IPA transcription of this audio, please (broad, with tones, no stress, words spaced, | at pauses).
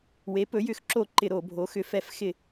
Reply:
we˩˥pɵ˩˥jʏ˧˩˧xǁo˧˩˧ ǃɪ˧˩˧ɾo˧˩˧bʱo˩˥ xʏ˩˥fɛ˧˩˧f xɪ˧˩˧